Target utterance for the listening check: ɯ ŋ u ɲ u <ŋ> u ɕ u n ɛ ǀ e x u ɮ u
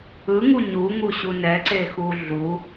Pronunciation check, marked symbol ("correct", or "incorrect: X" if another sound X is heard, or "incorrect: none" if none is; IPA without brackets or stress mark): correct